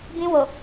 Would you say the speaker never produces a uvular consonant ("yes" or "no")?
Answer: yes